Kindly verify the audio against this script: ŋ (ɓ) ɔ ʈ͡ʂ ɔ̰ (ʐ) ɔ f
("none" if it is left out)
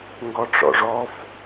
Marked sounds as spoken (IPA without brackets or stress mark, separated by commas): ɡ, ʐ